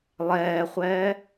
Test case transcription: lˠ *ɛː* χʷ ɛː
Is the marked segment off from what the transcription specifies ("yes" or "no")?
no